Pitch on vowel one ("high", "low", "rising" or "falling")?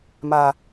low